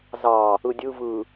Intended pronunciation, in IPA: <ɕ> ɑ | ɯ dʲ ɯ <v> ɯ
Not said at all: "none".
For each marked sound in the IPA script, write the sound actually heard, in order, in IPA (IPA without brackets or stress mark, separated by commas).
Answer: z, v